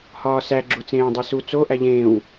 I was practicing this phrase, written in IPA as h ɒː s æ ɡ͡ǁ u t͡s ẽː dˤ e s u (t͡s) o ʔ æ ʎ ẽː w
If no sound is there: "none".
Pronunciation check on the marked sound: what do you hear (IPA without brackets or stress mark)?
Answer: t͡s